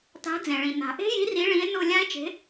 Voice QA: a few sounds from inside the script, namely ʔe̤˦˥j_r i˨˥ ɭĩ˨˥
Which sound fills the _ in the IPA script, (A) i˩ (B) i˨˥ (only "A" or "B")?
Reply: B